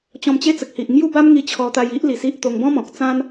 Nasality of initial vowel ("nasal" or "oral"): nasal